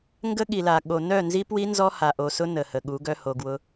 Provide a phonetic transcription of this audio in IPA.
ŋɡə˦ɠi˨la˨ ɠo˨ nœ˦˨ nzi˦pwi˦nzɔ˦ ha˨ʔo˨sʊ˦ nə˨hə˨ ɠu˨˦ɡœ˦ho˨ɡwʊ˦

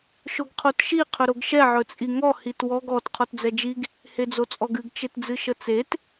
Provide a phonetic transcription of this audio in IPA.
ʃoɡqʰotʃi qʰɵɾoɡʃɛ ʕɵt͡sʼiŋɔ hitwɔɡ ɔt qʰɔtd͡zɛd͡ʒiɡ | hed͡zot͡sʼɔɡɨɡ t͡ʃetd͡zɨʃət͡set

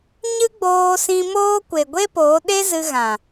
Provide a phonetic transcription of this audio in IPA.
ɲɨ˦ɡ͡boː˧sĩ˧moː˦ kʷe˨ɡʷe˦poː˨˦ ɗe˦ zɨ˧ɣã˨

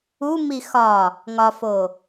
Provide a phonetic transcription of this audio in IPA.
u mixɒ | ŋɒfo

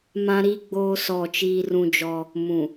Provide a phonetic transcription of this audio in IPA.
mã˦ɾi˦ɡ͡boː˦ sɔ˦˨t͡ʃiː˦rũ˦d͡ʒɔ˦ | mũ˨

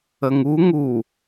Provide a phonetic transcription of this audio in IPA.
əŋu ŋu

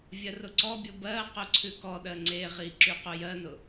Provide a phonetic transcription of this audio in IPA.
vʲɜrʊǀɔbʲo bɜqʊ ǀʰʉkɔɗɜ ŋ͡ǀeʁi ǁyqʊjɜnʊ

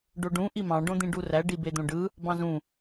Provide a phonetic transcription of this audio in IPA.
ɖoɖũ ʔimɑ̃ ɖõd̪ĩɖuræ ɖibed̪õɖɯ | bɑ̃zũ

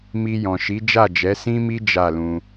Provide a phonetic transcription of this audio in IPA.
mi˧jɔ̃˨ʃi˨˦ d͡ʒa˦˨d͡ʒɛ˨˦sĩ˦mi˦ d͡ʒa˦˨lũ˧

